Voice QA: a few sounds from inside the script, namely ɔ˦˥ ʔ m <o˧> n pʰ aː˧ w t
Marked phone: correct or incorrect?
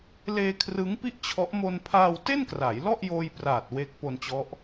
correct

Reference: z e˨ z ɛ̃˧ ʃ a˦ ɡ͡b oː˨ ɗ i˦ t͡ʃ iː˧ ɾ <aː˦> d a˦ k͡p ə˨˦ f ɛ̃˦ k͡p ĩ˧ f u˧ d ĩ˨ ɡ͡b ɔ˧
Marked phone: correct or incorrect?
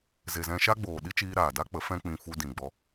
incorrect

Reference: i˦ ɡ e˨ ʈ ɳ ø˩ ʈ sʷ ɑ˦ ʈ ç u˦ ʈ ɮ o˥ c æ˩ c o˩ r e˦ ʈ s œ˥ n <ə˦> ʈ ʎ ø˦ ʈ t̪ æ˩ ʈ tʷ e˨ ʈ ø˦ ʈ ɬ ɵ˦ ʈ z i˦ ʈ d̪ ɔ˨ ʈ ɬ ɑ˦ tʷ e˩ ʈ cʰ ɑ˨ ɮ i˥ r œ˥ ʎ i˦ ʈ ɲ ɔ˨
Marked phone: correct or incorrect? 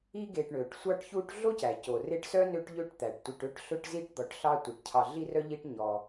incorrect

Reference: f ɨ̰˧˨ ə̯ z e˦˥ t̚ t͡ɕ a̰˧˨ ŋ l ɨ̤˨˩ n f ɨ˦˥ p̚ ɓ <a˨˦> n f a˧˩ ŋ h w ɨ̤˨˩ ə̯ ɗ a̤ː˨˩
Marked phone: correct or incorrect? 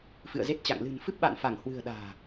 incorrect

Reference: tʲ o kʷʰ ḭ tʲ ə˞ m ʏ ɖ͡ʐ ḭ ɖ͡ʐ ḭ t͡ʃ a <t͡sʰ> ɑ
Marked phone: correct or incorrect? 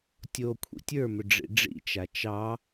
incorrect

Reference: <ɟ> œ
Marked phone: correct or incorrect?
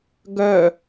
incorrect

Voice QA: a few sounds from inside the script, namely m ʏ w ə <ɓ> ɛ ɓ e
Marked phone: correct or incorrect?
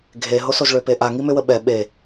correct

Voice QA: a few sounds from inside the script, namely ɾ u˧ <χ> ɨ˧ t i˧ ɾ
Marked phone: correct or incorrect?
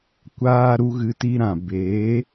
incorrect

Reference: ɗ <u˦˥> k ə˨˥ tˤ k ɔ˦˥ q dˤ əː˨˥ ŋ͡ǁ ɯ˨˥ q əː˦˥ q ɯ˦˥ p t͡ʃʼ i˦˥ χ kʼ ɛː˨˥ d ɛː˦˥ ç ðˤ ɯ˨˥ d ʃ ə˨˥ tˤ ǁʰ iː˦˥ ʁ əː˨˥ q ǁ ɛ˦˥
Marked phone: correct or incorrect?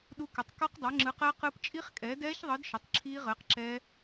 correct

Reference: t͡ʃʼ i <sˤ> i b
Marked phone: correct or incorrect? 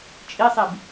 correct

